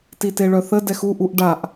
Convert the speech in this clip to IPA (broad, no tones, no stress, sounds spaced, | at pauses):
t i t e ɭ œ θ ə d ɛ x u ʔ u ʔ ɖ a ʔ